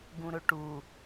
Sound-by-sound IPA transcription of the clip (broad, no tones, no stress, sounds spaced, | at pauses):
ɡ ũ ɾ ɵ ʈ u